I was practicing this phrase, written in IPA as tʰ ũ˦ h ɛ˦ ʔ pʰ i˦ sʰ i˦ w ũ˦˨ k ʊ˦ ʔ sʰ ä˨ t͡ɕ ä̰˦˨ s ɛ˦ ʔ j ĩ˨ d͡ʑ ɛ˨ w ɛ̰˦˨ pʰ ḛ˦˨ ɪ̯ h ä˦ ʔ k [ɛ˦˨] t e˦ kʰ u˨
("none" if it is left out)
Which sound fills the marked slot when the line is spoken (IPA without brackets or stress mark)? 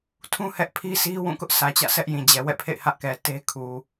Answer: ɛ˨